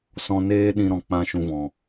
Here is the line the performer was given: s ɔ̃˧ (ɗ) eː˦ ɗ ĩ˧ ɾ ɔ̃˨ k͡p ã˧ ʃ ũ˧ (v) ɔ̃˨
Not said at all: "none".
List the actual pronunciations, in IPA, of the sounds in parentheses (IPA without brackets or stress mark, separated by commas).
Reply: n, v